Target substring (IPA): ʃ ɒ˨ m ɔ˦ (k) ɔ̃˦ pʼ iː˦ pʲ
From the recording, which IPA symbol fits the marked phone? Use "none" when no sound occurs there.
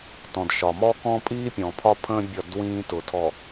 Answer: k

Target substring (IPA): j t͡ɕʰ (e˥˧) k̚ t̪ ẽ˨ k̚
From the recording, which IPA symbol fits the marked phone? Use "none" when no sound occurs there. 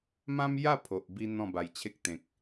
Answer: e˦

